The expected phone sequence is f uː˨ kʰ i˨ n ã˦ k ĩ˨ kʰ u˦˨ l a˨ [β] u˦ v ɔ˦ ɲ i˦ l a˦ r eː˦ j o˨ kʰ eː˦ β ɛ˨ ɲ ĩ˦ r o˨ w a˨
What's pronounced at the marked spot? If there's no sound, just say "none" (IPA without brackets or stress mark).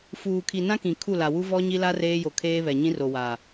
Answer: w